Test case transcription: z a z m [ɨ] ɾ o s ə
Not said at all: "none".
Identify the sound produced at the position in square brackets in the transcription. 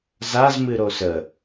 ɨ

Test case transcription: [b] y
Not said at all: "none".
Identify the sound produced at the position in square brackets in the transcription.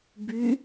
b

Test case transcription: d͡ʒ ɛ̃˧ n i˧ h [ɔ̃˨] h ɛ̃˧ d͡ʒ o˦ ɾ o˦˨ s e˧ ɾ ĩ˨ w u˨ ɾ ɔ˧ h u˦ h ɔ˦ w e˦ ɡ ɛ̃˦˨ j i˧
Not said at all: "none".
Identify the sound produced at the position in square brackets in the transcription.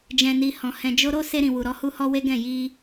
ɔ̃˨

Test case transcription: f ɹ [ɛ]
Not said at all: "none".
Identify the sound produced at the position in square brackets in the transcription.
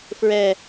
ɛ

